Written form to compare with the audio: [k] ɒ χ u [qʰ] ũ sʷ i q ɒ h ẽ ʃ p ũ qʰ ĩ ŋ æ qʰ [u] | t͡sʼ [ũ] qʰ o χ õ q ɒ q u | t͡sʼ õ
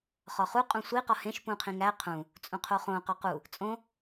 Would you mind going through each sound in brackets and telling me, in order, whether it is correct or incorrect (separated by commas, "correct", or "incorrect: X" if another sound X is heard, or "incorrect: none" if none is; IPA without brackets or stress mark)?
incorrect: χ, incorrect: qʼ, incorrect: ũ, correct